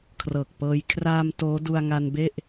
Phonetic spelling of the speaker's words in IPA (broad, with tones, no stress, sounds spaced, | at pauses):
kʰ r ɤː˨˩ k̚ p ɤː˧ j kʰ r aː˧ m t oː˦˥ d u˧ a̯ ŋ a˧ n b e˥˩ ʔ